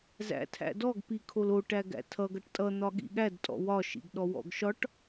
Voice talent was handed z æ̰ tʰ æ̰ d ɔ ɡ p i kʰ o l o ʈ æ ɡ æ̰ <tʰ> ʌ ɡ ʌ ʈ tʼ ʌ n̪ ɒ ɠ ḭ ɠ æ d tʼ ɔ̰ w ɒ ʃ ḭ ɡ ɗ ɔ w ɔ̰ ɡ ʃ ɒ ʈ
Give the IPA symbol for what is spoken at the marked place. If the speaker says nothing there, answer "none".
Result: tʰ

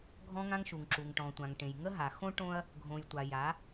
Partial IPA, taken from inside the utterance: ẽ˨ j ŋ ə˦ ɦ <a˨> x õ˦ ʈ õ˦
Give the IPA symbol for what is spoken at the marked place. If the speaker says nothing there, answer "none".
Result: a˨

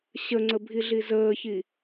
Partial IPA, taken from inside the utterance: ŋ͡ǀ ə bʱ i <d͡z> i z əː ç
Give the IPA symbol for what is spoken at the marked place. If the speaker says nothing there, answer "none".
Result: ɮ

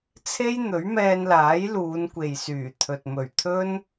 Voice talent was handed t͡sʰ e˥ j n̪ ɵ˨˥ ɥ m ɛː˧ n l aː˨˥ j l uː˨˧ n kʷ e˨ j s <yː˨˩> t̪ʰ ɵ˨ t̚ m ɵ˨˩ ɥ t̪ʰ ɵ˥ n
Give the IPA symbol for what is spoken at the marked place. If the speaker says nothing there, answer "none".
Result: yː˨˩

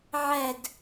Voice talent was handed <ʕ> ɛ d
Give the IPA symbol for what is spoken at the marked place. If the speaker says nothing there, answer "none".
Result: ʕ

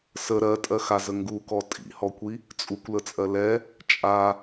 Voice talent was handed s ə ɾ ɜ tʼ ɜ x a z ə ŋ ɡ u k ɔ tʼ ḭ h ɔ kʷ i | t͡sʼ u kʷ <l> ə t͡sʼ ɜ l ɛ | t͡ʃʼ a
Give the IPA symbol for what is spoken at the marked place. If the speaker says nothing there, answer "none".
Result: l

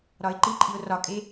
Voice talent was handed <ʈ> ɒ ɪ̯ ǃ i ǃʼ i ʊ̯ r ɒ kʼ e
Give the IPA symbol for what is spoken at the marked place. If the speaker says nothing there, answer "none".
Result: ɾ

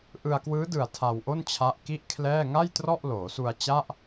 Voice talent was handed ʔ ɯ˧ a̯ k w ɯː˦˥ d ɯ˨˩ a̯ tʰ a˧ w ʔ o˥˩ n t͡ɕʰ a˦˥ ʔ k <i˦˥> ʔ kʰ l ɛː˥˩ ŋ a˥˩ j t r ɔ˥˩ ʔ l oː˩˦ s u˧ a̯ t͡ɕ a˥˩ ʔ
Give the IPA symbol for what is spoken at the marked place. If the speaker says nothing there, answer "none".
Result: i˥˩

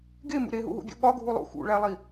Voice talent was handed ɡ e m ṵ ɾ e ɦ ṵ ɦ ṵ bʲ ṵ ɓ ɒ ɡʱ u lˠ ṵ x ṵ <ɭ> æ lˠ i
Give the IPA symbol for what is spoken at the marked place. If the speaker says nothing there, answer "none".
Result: ɭ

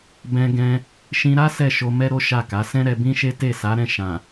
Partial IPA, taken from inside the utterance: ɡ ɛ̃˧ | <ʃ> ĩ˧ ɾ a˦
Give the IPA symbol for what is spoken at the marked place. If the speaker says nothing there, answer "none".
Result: ʃ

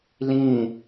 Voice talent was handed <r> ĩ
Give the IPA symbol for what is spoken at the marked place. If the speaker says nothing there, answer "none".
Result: l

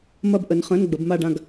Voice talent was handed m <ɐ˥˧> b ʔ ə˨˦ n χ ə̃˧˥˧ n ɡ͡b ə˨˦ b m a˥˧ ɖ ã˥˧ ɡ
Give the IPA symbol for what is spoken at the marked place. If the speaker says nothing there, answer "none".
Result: ɐ˥˧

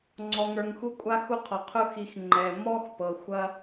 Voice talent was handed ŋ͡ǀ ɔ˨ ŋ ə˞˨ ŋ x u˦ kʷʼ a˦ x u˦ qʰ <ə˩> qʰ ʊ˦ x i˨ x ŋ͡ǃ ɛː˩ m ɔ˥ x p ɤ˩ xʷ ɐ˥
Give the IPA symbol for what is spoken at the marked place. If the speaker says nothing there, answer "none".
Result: ɔ˩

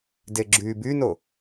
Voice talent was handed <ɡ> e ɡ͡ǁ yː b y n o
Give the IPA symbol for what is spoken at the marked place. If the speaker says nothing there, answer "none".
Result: d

